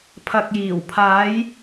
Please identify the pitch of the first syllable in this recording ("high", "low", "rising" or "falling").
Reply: low